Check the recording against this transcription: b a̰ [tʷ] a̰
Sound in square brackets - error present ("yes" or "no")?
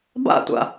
no